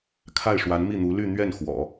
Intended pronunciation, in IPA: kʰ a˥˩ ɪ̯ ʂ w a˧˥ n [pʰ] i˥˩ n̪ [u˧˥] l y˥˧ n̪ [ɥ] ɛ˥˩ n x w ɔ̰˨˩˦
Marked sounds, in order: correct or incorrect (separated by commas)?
incorrect, correct, correct